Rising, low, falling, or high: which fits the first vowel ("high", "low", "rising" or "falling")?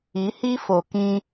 rising